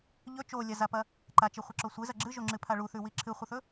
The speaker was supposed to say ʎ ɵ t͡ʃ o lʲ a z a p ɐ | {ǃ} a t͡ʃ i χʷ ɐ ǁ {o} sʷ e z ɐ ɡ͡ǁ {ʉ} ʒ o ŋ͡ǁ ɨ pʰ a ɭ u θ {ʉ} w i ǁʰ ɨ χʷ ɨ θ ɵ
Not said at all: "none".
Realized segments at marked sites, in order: ǃ, o, ɨ, ʉ

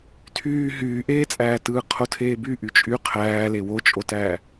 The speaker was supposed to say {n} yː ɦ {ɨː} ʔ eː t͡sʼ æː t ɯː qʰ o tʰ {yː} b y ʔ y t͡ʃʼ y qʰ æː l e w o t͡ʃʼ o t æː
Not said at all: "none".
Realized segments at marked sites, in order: tʰ, yː, eː

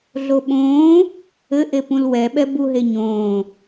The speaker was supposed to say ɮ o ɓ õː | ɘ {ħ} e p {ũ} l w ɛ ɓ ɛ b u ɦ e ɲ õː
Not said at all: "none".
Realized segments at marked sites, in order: ʔ, ũ

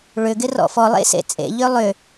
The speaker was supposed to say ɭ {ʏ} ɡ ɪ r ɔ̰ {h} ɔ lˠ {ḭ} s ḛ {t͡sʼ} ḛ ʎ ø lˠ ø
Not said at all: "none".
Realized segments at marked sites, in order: ʏ, f, ḛ, t͡sʼ

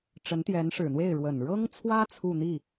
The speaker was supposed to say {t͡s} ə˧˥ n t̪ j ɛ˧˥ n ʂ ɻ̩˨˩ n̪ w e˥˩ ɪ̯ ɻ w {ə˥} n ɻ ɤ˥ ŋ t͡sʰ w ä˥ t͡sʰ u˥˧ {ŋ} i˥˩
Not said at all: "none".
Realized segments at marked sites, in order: ʈ͡ʂ, ə˨˩, n̪

